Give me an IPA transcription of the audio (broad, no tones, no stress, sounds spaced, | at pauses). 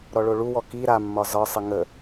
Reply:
ɾ ɔ ɭ o ɭ u w ɔ k i ɾ a mː ɒ z ɒ sˤ ə ŋ ə